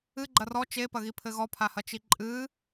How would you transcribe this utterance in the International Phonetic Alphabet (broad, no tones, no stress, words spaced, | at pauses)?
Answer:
ɨ ɡ͡ǃɐrɔ t͡ʃepɐɣipʰɘ ɣɔpʰahɐt͡ʃi ǃʼɨ